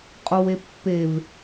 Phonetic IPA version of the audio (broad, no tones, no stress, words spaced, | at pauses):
qʼowepːev